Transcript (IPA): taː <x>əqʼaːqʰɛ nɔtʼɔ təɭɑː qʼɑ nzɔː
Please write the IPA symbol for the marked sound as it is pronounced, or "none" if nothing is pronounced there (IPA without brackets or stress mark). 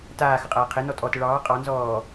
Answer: x